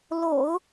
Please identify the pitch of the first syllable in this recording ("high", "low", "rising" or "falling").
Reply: low